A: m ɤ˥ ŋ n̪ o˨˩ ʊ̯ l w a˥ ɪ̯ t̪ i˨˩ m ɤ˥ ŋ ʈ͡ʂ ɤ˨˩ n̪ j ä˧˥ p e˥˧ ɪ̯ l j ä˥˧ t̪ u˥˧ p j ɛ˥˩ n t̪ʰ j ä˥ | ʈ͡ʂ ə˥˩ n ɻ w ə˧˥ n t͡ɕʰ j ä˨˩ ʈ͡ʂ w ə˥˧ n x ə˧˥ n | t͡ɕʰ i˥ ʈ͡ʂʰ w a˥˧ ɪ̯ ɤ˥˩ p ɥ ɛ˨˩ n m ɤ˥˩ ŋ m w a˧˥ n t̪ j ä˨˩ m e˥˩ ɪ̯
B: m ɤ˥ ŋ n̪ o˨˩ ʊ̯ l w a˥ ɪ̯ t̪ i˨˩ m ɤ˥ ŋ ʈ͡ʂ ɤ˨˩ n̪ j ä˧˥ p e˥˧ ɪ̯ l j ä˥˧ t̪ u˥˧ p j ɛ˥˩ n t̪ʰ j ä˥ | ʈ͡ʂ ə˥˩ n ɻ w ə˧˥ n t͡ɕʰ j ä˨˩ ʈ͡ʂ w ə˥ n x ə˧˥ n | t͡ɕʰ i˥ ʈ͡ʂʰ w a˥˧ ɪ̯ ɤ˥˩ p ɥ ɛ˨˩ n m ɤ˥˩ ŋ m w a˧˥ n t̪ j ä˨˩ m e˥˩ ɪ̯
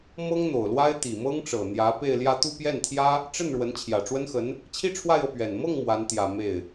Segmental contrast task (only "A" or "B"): B